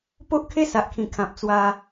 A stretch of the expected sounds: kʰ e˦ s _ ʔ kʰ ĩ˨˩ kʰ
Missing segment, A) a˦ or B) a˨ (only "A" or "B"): B